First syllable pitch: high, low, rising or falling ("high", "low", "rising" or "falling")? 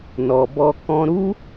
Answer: low